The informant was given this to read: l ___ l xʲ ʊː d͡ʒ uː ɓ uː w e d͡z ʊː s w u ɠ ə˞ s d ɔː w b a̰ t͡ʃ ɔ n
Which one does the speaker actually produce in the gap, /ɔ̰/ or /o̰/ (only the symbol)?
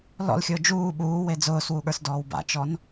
ɔ̰